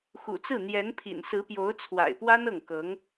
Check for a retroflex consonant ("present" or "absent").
absent